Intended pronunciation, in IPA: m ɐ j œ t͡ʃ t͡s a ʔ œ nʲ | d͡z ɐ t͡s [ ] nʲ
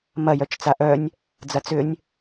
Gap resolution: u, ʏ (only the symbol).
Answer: ʏ